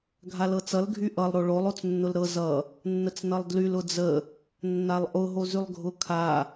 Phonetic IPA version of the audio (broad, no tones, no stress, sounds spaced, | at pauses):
ɡʱ a l ɤ t͡s ʌ l ɡʱ y ʔ ʌ lˠ ɾ o ɭ o lˠ o t͡s nː ʊ l ɾ ɤ z ʌ | nː ə t͡s n ʌ lˠ d l y l ʊ d͡z ə | nː a lˠ ʔ ʊ ɦ o z y lˠ ɡʱ ʊ kʰ a